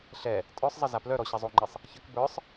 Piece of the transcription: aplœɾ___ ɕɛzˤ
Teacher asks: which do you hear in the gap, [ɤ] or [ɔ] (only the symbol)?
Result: ɔ